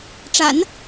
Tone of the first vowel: low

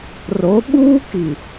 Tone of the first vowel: rising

